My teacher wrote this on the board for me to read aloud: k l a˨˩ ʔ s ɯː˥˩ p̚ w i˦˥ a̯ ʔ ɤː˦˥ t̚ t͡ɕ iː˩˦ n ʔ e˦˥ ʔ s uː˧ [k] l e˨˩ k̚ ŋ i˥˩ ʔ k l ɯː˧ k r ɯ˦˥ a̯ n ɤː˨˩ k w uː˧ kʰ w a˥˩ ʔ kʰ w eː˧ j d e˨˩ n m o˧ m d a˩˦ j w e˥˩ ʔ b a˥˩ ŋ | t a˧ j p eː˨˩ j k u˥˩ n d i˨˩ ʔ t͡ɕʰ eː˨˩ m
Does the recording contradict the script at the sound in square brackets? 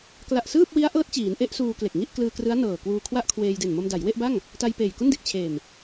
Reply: no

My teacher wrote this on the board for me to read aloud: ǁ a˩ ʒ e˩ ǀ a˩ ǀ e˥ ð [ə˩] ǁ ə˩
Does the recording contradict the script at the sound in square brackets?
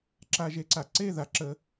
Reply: yes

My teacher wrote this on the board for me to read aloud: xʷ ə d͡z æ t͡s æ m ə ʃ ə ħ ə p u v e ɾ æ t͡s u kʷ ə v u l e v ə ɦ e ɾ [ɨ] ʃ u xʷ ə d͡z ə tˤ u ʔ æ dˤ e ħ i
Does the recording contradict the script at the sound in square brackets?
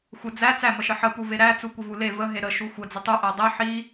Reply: yes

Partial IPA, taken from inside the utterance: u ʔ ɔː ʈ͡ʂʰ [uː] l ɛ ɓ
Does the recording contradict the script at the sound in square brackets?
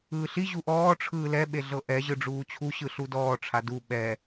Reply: yes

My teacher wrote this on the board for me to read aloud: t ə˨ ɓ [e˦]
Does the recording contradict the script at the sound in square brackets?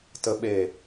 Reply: yes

